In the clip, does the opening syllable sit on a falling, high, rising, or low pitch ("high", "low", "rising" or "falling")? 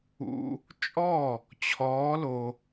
low